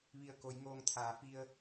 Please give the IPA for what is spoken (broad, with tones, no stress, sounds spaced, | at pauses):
ʋ i˧˩ ə̯ k o˩˧ j ŋ oː˧ ŋ t̪ʰ aː˩˧ f i˧ ə̯